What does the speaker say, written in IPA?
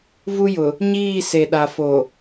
vu˦jʊ˨ | ɲiː˦˨se˨ɗa˨ fo˨

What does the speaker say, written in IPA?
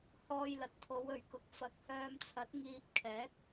hɔː˧jlɐ˨t̚ t̪ʰo˨˧wɵ˨ɥkʊ˨˥k̚ fɐ˨˥k̚hœː˧mt͡sʰɐ˨˥t̚ ŋiː˧p̚kʰɛː˨˥k̚

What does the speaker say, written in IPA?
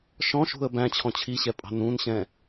ʃɔ̃ʃṳə̯ bæ̃ t͡ɕʰɔ̃t͡ɕʰiɕɛ pʼɑ̤nũnɕɛ̃

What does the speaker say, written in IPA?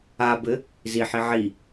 abɘ | ziħi ʕi

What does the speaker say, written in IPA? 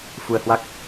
fu˧ə̯hwa˦˥k̚

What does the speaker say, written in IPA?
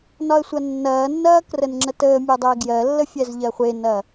nɒə̯sʷɐnːɐːnːɐː krənŋ͡ǁətəːmʲɛ dˤɛːɡjɜlːə fʲɛzʎɜχʷenɐː

